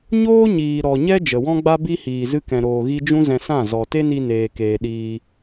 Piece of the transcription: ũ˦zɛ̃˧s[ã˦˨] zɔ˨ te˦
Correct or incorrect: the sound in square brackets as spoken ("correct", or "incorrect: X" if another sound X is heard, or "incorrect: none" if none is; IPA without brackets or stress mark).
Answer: correct